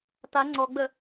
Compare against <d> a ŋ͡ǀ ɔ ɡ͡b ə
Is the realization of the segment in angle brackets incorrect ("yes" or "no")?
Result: yes